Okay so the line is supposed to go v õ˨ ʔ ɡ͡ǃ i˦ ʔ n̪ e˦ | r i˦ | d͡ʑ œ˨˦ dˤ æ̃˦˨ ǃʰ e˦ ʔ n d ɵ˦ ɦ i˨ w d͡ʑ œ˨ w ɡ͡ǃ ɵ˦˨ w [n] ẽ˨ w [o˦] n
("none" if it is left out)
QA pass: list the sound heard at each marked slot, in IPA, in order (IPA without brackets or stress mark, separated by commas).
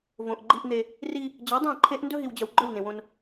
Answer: n, õ˦